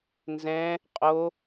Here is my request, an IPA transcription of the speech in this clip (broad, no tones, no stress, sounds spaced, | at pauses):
n z ɛ̃ | qʼ o